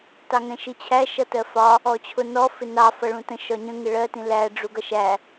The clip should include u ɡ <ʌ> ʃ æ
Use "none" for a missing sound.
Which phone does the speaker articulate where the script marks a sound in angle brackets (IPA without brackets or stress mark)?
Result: ʌ